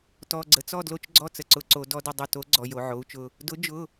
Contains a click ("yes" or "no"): yes